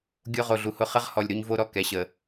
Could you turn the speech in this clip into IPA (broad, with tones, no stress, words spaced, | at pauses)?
ɡʲo˦ʁo˨ɮu˨hʊ˦ χə˦ʁ hɔ˨lʲɾu˦ɲvo˦ɾɔ˨ kɛ˨ɕə˨